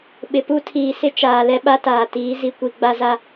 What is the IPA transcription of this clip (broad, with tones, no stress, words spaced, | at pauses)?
ɓɪ˨pu˦tʰiː˨sɪ˦ t͡ʃaː˨lɛ˦ ɓa˦taː˨tiː˨˦ zi˨kʷi˨ɡ͡ba˦za˦